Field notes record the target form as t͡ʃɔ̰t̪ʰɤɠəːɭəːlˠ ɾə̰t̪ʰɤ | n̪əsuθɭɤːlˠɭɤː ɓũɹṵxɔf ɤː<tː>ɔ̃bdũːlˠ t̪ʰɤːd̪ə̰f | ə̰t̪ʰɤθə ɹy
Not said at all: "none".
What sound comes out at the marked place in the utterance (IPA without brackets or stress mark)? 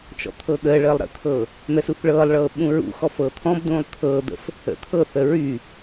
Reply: t̪ʰ